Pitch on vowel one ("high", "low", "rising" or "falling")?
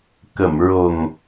low